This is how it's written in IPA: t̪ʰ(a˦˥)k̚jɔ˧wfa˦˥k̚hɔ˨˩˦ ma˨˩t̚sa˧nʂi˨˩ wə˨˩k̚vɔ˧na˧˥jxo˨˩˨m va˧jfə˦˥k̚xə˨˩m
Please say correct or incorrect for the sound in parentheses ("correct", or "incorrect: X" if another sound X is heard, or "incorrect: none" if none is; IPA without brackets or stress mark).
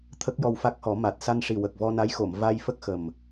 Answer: incorrect: ə˦˥